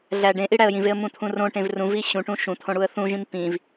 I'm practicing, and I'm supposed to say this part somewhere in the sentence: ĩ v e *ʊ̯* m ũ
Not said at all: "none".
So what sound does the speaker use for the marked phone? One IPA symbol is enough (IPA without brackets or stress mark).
ə̯